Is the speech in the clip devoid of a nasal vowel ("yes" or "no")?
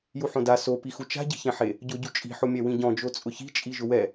no